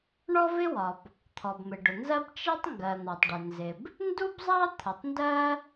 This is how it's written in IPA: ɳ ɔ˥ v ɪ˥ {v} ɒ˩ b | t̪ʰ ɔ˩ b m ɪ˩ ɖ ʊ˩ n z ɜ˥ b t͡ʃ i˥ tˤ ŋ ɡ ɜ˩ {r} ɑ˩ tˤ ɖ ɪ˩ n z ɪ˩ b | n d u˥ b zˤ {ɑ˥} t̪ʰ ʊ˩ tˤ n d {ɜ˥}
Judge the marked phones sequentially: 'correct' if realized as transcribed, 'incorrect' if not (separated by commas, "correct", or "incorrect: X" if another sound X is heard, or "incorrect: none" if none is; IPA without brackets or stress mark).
incorrect: w, incorrect: n̪, correct, correct